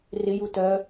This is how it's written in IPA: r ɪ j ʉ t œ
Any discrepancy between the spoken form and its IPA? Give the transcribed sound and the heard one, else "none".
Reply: ʉ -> u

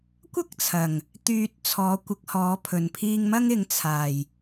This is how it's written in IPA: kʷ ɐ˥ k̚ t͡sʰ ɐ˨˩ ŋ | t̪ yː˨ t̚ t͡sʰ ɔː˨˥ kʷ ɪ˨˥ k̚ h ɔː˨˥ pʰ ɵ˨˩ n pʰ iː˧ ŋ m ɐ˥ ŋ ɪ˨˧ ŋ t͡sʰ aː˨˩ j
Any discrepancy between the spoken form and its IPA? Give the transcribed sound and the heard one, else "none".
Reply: none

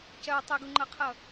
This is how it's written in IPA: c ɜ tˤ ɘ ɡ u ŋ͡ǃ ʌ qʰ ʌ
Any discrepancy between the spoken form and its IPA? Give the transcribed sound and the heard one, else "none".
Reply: none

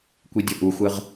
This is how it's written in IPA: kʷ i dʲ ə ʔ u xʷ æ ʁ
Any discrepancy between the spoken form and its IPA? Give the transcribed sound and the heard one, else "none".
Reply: æ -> ə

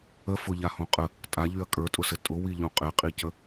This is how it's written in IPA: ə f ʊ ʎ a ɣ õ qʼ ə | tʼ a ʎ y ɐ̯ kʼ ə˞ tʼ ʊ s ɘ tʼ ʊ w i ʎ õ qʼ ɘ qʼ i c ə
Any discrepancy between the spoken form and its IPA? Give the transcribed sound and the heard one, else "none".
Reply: ɣ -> h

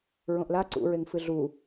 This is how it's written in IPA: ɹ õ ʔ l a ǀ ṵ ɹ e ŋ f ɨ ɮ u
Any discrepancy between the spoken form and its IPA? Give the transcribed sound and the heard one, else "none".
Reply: none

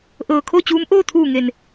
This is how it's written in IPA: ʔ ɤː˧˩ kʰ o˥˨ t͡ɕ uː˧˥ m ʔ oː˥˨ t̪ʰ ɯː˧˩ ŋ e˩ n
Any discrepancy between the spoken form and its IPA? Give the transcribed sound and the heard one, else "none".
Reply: ɯː˧˩ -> uː˧˩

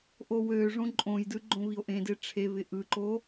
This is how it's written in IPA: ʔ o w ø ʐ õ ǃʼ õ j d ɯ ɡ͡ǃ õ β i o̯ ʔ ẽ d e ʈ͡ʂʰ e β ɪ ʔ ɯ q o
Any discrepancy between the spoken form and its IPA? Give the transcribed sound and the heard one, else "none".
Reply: q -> ǃ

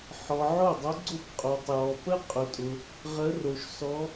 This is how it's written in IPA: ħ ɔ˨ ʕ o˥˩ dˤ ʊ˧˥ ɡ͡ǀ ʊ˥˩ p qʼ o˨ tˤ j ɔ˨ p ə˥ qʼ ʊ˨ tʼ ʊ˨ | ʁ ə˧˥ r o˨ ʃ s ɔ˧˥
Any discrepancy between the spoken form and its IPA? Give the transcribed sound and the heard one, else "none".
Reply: none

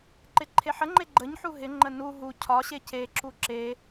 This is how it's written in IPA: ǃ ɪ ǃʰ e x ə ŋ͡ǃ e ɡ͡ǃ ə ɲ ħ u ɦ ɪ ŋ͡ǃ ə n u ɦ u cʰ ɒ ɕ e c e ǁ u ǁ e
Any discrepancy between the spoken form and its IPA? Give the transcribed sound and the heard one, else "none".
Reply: x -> ħ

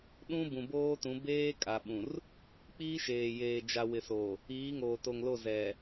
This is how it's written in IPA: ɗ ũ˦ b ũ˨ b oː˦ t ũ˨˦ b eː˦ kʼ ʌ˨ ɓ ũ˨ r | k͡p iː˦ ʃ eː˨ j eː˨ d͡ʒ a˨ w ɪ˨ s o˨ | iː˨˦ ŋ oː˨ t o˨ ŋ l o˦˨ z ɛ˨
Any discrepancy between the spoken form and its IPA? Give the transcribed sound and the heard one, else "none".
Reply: ʌ˨ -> a˨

